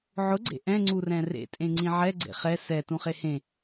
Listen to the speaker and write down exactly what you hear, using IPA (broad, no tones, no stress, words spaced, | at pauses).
ʕʊɡ͡ǀḛ ʔɛ̃ŋ͡ǀurɛ̃ rḛtʼẽŋ͡ǀĩ ʕɛɡ͡ǀḛ χɛ sɛ tũχehẽ